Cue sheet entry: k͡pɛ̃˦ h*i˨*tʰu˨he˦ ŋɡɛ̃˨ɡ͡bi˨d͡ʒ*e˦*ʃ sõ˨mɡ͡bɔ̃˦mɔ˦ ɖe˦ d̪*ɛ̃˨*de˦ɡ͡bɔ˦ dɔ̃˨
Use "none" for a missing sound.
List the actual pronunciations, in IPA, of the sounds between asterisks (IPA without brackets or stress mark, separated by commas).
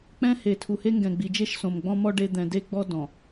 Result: e˨, e˦, ɛ̃˨